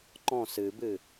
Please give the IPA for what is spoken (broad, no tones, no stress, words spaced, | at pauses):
ǃɔ̃ sɨbɨ